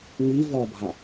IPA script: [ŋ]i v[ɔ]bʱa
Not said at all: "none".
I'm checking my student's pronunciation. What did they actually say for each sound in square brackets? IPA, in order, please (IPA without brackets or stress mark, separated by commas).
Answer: ŋ, ɔ